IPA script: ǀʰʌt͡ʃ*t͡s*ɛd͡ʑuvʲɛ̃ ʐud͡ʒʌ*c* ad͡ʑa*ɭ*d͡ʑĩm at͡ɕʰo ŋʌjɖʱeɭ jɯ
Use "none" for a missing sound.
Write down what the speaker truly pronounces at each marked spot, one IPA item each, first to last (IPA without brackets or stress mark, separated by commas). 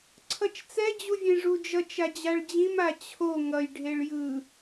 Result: t͡s, t͡ʃ, ɭ